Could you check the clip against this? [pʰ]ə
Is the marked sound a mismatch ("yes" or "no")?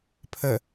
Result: no